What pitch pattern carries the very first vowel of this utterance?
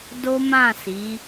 high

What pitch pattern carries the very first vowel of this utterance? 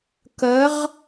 rising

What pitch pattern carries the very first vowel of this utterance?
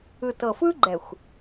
low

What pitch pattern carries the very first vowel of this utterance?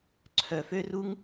low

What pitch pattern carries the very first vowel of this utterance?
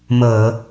low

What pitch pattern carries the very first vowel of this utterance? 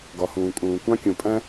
low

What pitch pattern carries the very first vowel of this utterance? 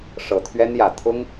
low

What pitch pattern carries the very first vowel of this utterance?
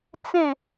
falling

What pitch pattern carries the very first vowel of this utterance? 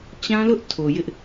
high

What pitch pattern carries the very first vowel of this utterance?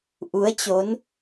rising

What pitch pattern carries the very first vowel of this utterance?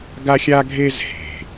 high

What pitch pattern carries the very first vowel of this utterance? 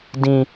high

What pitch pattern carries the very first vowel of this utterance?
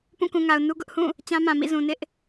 falling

